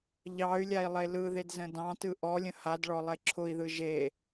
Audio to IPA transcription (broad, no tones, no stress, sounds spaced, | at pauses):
ʎ ɑ y̯ lʲ a i̯ lˠ e l ɯ ð e d z ə̃ d ɑ̃ t ɯ ʔ ɔ lʲ ə̃ h a d ɭ ɔ lˠ e ǁʰ ʊ i̯ ð ɯ ʒ e